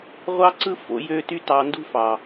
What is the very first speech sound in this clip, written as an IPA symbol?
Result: ʁʷ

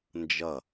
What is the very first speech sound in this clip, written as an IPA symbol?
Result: n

